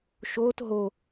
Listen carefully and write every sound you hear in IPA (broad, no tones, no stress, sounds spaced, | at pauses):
ʃ oː t ɦ o